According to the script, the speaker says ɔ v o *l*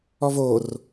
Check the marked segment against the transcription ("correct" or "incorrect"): incorrect